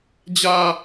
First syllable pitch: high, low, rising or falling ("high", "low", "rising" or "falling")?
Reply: high